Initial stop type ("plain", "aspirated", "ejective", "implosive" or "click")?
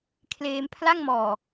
aspirated